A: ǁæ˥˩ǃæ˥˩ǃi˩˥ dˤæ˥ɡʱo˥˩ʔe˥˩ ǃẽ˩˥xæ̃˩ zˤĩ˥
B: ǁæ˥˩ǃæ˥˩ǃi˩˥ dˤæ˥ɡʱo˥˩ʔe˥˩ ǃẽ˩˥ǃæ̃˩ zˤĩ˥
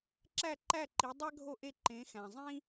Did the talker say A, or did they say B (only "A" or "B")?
A